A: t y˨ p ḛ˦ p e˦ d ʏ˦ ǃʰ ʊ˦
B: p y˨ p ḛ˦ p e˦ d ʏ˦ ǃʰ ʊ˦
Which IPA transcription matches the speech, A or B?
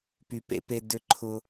B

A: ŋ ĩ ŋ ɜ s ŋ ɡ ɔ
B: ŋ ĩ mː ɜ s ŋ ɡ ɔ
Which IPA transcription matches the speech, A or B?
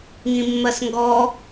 B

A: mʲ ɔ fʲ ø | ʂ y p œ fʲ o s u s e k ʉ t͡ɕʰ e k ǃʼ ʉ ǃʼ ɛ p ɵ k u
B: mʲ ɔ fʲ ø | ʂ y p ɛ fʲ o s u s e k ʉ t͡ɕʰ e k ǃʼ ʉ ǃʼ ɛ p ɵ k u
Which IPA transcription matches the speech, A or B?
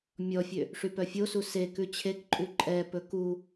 A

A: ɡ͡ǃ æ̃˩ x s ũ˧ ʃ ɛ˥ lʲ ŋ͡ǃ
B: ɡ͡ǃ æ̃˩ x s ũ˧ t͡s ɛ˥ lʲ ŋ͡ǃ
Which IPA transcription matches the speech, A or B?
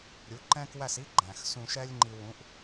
A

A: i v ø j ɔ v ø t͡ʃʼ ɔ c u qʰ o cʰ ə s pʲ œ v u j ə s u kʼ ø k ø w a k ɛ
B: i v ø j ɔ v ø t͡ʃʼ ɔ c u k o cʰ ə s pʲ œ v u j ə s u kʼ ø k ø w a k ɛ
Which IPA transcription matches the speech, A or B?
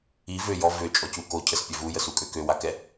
B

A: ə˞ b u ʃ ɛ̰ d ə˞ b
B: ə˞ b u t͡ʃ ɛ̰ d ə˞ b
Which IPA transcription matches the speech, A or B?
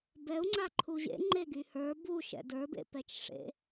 A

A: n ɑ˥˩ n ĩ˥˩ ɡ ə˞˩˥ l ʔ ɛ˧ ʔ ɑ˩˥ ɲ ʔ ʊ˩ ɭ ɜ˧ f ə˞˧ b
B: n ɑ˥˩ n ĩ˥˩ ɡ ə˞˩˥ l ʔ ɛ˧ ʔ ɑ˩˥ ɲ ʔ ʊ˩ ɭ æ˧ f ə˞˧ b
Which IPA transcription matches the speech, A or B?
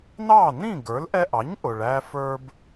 B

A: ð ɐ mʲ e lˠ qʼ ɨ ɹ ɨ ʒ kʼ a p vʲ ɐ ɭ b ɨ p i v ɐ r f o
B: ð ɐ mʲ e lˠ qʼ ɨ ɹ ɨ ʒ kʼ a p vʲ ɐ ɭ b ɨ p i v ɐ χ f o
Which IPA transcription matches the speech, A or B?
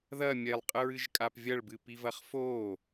B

